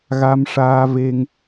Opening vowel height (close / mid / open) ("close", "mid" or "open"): open